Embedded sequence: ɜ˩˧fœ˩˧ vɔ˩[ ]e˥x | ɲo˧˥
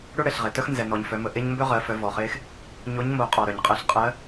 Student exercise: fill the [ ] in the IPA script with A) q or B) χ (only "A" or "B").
B